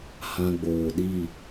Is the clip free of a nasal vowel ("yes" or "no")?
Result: no